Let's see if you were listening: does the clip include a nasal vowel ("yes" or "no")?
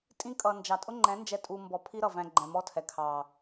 yes